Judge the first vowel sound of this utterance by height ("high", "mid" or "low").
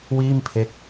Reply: high